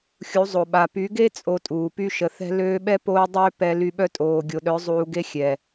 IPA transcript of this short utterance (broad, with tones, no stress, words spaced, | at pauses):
xʲu˨˦zˤo˨ɓa˨ py˨˦ɡe˦ t͡sʼo˧tʼuː˨ py˧ʃə˨ θɛ̤˧løː˧ɓɛ˦ poː˦dˤøː˦ pɛ˧ly˧ɓœ˦ tʼoː˨ɡʲo˨ɗœ˨˦ zˤuː˧ɡe˦xʲɛ˨